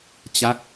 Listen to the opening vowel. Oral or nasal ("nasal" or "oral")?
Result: oral